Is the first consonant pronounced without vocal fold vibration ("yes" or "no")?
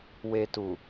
no